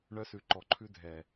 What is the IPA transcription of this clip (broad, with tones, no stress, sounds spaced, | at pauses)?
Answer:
ɳ œ˦ s ʉ˨ ǃ ɔ˨ ǃʰ ʉ˦ dʱ ɛ˨